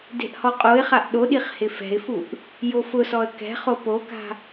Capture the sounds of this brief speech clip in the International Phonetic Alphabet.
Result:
de̤ʔhɔqʼoɪ̯χaʔ ɗoɗiχ hɪfɛ̤ɪ̯fuʔ | jofʊsɔə̯ kɛ̤χo poka̤

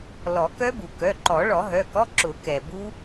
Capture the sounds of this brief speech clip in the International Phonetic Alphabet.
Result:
lɔ˨˩˦kœ˦˥bu˩kœ˩˧˩ ǃɔ˨˩˦ɭɔ˨˩˦ɦœ˩˧˩kɔ˧˥˧ ǁʊ˨˩˦kɛ˩ bu˦˥

